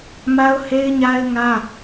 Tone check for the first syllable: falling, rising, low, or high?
high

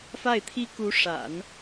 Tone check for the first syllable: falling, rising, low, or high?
falling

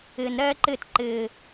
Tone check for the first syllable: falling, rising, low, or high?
low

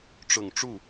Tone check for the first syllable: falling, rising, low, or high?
low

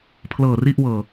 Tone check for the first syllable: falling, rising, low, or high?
low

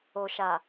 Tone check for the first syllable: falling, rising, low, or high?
low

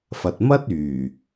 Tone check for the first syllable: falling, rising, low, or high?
low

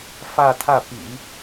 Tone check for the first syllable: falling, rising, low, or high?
falling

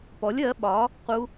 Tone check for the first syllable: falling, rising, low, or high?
rising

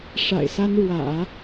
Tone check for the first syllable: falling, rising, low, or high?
low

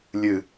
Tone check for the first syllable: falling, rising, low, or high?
falling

